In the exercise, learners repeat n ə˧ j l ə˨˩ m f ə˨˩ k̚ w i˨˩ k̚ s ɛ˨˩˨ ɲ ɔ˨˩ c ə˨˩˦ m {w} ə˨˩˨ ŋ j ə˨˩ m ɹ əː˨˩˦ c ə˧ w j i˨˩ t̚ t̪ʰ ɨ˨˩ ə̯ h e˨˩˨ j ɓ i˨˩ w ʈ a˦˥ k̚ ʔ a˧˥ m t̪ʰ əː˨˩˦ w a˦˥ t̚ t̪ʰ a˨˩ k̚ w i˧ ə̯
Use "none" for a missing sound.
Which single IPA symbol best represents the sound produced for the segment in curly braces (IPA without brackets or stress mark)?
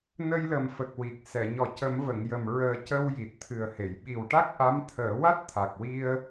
v